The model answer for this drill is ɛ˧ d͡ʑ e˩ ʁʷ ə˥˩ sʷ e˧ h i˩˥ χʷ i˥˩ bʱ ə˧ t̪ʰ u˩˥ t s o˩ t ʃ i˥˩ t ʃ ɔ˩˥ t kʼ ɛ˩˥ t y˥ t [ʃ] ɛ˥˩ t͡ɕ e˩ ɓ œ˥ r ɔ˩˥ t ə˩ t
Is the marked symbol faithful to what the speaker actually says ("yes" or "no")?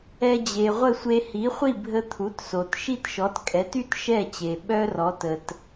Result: yes